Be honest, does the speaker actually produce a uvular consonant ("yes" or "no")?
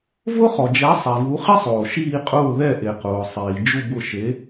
yes